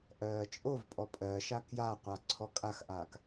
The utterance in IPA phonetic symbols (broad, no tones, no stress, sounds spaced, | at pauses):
ʔ ɜː t͡ʃʼ o v pʼ ɔ pʼ ɜ ʃ a k j a qʷ a ǀʰ ɔ kʼ a x ʔ aː k